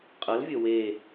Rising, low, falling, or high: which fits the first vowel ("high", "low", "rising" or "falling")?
rising